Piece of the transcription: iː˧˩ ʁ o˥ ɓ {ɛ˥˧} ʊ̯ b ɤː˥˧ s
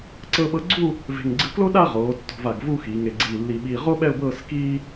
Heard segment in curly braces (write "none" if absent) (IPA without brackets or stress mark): ɛ˥˧